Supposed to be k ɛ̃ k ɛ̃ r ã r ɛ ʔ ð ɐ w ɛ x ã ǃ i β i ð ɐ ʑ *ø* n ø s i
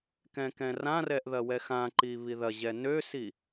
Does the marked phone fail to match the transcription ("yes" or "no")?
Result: yes